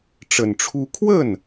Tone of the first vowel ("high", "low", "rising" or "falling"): low